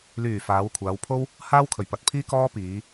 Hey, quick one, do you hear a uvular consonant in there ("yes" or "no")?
no